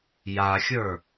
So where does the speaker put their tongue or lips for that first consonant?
palate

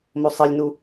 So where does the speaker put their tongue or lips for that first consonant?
lips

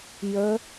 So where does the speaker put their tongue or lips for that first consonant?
palate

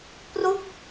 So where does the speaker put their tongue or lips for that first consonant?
lips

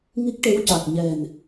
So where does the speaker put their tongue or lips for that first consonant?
velum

